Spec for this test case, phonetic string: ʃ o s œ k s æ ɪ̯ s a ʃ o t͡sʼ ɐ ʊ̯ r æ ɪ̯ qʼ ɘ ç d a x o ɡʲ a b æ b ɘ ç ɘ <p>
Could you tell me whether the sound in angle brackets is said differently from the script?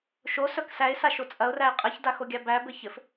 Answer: yes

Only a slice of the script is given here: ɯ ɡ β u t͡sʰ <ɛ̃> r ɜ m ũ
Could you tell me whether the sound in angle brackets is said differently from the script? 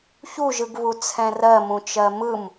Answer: no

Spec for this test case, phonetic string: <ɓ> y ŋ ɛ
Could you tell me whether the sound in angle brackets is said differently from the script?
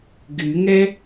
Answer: yes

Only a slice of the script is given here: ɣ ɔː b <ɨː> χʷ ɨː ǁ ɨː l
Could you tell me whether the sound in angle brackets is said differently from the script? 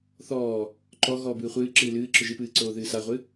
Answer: no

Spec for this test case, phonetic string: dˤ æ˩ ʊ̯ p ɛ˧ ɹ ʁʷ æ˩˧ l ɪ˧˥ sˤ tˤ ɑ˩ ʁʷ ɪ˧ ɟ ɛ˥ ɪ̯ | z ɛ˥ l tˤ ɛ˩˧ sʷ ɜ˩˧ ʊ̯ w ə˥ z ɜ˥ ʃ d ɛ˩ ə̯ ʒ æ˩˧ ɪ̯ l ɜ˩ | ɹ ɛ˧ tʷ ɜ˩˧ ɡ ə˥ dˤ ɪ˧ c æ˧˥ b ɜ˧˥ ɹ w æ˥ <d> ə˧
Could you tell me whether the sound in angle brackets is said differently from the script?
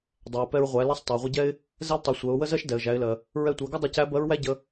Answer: yes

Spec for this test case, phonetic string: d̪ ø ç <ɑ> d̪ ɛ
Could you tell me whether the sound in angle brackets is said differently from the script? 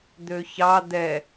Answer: no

